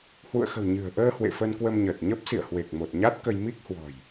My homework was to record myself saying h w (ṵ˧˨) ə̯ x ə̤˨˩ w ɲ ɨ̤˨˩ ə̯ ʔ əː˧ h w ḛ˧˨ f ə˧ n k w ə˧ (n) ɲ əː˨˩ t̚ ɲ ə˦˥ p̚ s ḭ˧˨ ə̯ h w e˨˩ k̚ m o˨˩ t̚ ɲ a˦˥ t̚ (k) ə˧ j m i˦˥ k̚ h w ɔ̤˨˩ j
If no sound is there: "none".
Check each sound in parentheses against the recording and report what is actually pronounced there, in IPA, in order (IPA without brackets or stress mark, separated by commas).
ṵ˧˨, m, k